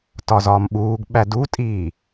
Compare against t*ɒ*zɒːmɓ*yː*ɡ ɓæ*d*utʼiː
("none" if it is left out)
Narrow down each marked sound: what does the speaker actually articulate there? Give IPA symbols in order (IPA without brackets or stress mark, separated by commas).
ɒ, uː, d